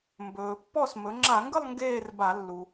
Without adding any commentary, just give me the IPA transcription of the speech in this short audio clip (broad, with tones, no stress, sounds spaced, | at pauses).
m b ɵː˩ pː ɔ˥˩ s m ɵ˩˧ ŋ͡ǁ a˧˩˧ ŋ ɡ ə˥˧ lˠ ŋ ɡ eː˥˧ r b a˧˩˧ lː u˩